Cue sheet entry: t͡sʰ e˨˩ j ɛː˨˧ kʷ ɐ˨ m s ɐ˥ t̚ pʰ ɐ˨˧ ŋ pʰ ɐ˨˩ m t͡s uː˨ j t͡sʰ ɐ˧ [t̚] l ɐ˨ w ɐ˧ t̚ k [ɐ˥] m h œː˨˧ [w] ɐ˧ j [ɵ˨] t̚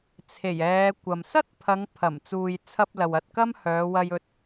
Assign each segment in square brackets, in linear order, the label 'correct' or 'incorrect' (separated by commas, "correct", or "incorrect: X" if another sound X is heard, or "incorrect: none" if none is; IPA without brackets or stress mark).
incorrect: p̚, correct, correct, incorrect: ɵ˧